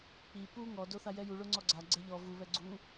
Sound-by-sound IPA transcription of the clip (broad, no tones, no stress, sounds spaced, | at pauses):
k͡p i p u ŋ ɔ d o θ a j ɛ j u ɭ o ŋ͡ǀ ɔ ɡ͡ǀ a ɡ͡ǀ ɛ ʎ ɔ v u β ɛ ɡ͡ǀ u